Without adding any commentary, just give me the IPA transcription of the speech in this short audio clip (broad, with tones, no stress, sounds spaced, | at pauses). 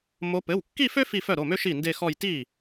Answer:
m o˧˥ p ɘ˩˧˩ w kː i˥˧ f ø˥ f i˥˧ f œ˥˩ ɾ o˩˧˩ m ø˥ ʃ i˥˩ n d e˥˧ x ɔ˥˧ j t i˥˩